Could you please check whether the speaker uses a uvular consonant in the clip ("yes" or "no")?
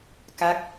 no